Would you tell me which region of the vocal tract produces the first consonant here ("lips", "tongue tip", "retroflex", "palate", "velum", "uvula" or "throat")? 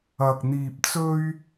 velum